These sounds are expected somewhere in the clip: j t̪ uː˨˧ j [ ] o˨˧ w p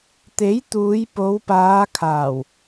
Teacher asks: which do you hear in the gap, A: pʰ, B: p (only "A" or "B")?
B